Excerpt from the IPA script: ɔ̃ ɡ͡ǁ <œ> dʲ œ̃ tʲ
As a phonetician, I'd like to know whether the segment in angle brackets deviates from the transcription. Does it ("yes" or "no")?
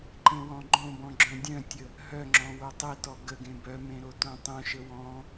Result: yes